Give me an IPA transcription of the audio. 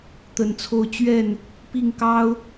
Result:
t̪ə˨˦nt͡sʰo˦ʊ̯ t͡ɕɥɛ˥˨n | pi˥˨ŋkɑ˦ʊ̯

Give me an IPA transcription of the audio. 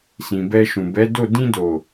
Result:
sĩ˨bɛ˧ ʃũ˨bɛ˨˦do˦˨ dĩ˧do˨

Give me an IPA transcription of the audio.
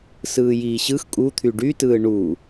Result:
sɯːjiːɕɯx kʼut̪ʰy ɖytɯː ɳu

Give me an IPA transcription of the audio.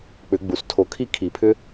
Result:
k͡pʏ˨˩˦ɡ͡bu˩s tʰo˨˩˦kʰi˥˧kʰi˨˩˦pʰʏ˦˥

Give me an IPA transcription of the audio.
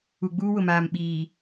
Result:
u˨ɡ͡buː˦wʊ˨maː˨m ɓiː˨

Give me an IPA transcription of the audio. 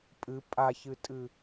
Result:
pʼɨ pʼaçɨtʼɨ

